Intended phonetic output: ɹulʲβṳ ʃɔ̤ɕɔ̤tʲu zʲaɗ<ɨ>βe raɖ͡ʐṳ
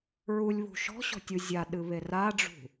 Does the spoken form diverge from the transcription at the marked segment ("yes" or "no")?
no